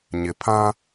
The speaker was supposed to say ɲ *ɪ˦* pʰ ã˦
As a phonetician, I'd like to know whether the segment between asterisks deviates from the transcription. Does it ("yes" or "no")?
yes